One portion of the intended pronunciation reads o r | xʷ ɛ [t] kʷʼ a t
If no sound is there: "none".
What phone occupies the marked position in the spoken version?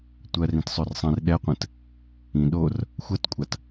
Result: t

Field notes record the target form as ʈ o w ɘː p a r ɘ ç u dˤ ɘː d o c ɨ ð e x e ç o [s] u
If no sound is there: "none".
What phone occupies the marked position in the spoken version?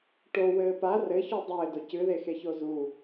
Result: z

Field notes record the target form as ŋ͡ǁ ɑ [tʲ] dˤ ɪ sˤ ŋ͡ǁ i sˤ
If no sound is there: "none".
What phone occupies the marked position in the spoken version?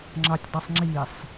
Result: tʲ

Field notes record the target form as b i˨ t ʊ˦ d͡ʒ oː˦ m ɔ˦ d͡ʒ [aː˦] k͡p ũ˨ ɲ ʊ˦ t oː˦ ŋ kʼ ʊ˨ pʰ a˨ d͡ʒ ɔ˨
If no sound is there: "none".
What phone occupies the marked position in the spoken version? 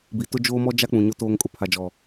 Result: a˦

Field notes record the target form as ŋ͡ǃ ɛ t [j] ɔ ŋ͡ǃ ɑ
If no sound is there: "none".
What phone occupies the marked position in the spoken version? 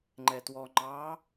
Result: w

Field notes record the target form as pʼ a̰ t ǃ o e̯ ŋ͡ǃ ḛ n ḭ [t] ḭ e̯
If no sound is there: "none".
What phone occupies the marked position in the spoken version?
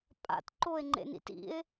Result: t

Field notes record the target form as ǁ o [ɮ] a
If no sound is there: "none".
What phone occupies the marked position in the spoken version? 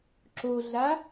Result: ɮ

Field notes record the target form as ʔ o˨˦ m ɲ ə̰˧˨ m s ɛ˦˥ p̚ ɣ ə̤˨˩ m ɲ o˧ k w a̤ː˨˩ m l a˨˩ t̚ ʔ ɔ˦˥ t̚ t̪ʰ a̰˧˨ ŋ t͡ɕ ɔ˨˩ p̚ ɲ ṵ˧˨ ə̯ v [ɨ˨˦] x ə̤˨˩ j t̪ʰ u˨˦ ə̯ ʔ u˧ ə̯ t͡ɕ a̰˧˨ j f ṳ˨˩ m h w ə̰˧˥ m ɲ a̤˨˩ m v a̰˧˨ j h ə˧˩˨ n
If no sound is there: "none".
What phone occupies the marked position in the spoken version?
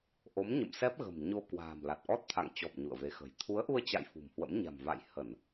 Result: e˨˦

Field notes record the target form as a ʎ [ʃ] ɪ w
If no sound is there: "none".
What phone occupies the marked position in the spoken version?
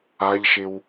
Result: ʃ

